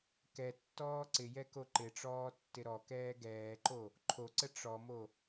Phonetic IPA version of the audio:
k ɛ tː ɔː ǀ ɪ j ɛ k o ǃ ɪ ʈ͡ʂ ɔː tː ɪ ɾ ɔ k ɛː ɡ ɛː ǃ o | ǃʰ o ǀ ə ʈ͡ʂ ɔ m o

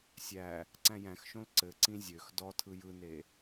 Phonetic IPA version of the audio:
sʲ æ | ǀ æ̃ j æ̃ x ʃ õ l ǀ ɘ ǀ ĩ zʲ ø x d ɔ tʰ ɯ j ɯ n e

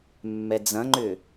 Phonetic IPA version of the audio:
mː ɛ d͡z ɐ̃ ŋ͡ǃ ʏː

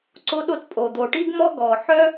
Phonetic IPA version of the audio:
ǀ o˥ ɗ o˥ t pʼ o˩ d̪ o˩ ʈ i˥ ɡ m ɔ˥ ɡ ɔ˩ ħ œ˥

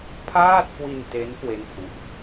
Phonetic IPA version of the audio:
pʰ aː˥˩ t̚ k w i˧ n t e˦˥ n k w e˥˩ n pʰ u˦˥ ʔ

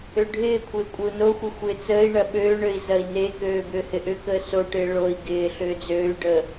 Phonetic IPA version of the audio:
ø ɖʱ ɪː kʷʰ ɪː kʷʼ ɪ u̯ n o xʷ ɪ xʷ ɪː t͡s əː i̯ ɳ ɐ ɓ øː ɳ ø i̯ z ɐ i̯ n e k øː b ʏː h ɪ ʔ ʏ k əː s o ʈ ɪː ɭ o i̯ ɡ ɪː ɬ ʏː d͡z øː y̯ ɖ əː

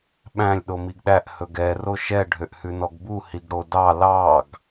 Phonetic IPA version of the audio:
ɓ æ̃ lʲ ɗ o m i ɡ ɗ æ ʔ h ɵ ɡ ɛ r o ʃ ɛ ɖʱ ø ʔ h ʉ n ɔ ɡ b u h i ɡ ɽ o d ɑ l ɑ ɡ

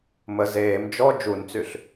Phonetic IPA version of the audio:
m ə z eː m d͡ʒ ɔ d͡ʒ u n t͡s y ɬ

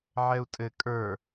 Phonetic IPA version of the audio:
ʕ ɛ u̯ tʼ ɘ kʼ ə˞

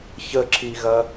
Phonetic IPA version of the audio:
ç ə ǁ i ɣ ɐ

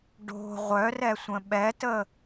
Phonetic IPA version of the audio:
ɖ o̤ ʁʷ œ r ɛ sʷ ə̃ ɓ ɛ t ə

